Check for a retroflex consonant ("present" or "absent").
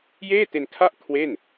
absent